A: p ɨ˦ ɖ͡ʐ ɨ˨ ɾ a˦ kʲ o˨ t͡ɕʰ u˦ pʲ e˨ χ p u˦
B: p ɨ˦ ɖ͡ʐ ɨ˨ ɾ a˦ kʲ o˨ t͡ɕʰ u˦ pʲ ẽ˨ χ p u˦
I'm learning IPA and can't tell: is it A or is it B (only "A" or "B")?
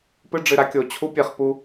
A